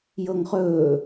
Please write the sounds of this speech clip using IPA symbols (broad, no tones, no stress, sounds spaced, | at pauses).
j ɤ ŋ χ ɵː